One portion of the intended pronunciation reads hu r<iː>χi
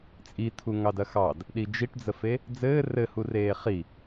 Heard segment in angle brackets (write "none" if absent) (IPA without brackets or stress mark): eː